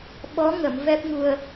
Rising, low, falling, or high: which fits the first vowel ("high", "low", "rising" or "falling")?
rising